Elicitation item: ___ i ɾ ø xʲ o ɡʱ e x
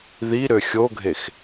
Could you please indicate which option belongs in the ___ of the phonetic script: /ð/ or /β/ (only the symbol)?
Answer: ð